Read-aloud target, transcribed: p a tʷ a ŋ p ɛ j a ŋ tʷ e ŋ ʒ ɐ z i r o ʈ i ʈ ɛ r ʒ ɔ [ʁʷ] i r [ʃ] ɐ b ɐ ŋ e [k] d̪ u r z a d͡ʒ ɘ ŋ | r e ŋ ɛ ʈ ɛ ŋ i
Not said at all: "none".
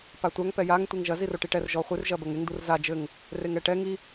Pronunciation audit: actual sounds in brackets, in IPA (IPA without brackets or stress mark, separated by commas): χʷ, ʒ, ŋ